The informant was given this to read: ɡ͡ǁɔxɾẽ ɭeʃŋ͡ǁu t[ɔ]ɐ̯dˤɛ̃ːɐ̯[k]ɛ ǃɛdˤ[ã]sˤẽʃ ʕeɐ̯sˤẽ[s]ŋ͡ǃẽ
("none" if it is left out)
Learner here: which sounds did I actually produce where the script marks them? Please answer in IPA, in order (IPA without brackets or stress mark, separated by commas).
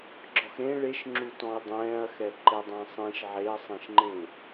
ɔ̃, x, ã, ʃ